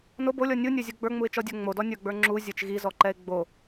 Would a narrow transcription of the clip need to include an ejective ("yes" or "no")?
no